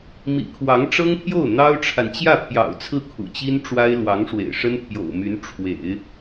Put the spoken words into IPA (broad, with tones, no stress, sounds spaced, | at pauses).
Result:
m ḭ˨˩ kʰ w ɑ˧˥ ŋ ʈ͡ʂ ɤ˥ ŋ pʰ j o˥˩ ʊ̯ n̪ ɑ˥ ʊ̯ ʈ͡ʂʰ a˨ n t͡ɕ j ä˥˩ pʰ j ɑ̰˨˩ ʊ̯ t͡sʰ ɹ̩˥˩ kʰ ṵ˨˩ t͡ɕ i˥ n ʈ͡ʂ w a˥ ɪ̯ l w ɑ˧˥ ŋ ʂ w ḛ˨˩ ɪ̯ ʂ ə˥ n pʰ j o̰˨˩ ʊ̯ m y˧˥ n ʈ͡ʂʰ w ḛ˨˩˦ ɪ̯